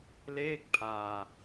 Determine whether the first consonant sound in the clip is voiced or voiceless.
voiced